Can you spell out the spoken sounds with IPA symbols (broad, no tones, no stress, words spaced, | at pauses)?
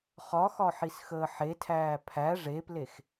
χɒxɒħisxəː ħetʰæː pʰæ ʐeplex